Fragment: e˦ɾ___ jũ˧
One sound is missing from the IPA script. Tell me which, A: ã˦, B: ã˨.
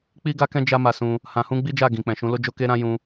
A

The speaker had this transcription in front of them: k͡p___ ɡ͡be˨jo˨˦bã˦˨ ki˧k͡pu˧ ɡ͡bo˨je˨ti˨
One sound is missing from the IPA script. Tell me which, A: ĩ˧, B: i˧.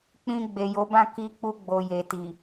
A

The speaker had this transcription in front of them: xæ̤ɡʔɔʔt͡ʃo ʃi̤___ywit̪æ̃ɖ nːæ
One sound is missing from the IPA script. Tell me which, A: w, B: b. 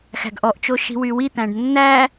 A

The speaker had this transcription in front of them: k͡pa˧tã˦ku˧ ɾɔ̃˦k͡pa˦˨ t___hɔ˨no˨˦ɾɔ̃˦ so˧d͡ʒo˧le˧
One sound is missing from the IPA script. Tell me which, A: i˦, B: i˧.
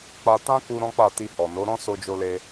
B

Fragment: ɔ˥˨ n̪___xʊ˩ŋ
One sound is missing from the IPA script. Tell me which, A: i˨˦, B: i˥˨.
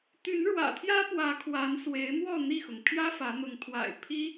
B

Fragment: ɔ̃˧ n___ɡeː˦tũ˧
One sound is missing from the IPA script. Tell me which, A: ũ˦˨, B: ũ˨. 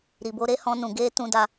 B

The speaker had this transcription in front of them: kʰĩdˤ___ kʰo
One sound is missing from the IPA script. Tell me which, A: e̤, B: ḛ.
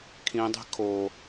A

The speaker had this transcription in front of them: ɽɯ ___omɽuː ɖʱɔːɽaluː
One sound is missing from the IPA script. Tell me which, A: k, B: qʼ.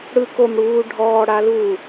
A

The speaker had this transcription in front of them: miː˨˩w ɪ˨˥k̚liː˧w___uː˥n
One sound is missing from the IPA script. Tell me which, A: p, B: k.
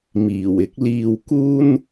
B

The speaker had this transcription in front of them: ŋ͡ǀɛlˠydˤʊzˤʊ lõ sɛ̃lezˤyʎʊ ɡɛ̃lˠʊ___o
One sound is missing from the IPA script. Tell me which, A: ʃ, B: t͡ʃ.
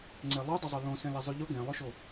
A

